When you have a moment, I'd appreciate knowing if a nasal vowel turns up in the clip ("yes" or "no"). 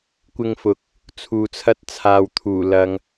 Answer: no